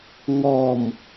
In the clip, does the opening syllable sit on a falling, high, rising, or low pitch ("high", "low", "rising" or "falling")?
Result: low